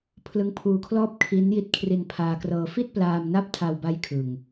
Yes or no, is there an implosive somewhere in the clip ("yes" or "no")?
no